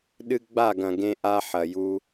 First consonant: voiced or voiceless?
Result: voiced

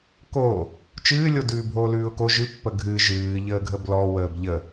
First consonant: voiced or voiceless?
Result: voiceless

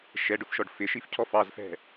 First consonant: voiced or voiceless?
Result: voiceless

